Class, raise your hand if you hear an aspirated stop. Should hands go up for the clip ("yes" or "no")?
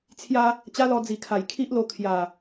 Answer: yes